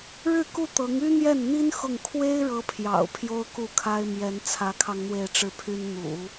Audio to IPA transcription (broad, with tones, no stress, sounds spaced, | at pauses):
ɻ ɻ̩˥˧ k u˥˩ t̪ ɤ˧˥ ŋ y˥ n̪ j ɛ˥˩ n n̪ i˥ n x ʊ˥˩ ŋ kʰ w e˥ ɪ̯ ɻ ɤ˧˥ pʰ j ɑ̰˨˩ ʊ̯ pʰ j o˥ ʊ̯ k u˥˩ kʰ a˥ ɪ̯ m j ɛ˧˥ n t͡sʰ ä˧˥ kʰ ɑ˧ ŋ n̪ w e˥˧ ɪ̯ ʈ͡ʂ ɻ̩˥˩ pʰ y˥ n n̪ ṵ˨˩˦